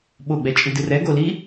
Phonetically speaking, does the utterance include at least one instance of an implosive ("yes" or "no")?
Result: yes